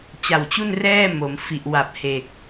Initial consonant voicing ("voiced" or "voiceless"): voiceless